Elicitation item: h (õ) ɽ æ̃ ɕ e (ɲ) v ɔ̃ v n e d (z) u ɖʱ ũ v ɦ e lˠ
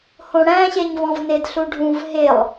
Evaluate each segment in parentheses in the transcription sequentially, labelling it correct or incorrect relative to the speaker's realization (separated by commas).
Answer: correct, correct, incorrect